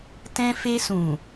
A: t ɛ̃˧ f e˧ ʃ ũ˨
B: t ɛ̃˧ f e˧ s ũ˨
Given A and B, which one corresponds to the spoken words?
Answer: B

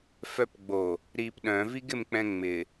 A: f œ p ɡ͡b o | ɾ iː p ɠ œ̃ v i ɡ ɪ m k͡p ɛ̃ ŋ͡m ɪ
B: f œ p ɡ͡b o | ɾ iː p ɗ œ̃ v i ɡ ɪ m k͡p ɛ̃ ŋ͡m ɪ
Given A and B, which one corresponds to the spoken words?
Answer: B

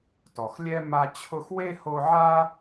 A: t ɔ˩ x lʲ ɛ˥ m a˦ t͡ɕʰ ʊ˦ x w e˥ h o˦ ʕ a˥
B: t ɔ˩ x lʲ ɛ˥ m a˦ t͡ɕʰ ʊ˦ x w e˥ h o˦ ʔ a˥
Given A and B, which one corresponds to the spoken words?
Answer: A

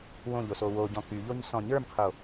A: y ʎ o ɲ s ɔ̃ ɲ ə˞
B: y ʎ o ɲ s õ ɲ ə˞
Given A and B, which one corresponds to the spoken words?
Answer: A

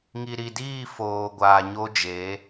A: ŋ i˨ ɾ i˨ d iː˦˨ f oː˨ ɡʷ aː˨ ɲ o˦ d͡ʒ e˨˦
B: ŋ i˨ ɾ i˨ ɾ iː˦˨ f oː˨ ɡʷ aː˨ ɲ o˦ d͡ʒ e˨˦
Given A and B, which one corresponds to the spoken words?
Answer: A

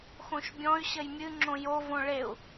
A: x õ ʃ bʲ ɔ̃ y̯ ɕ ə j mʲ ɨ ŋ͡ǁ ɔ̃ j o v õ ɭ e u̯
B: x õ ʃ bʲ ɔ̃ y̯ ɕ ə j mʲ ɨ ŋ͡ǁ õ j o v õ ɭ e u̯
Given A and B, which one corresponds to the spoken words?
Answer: B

